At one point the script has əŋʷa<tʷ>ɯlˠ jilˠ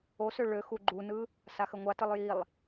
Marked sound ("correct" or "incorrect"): incorrect